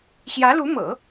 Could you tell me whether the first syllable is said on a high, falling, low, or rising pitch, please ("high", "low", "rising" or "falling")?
rising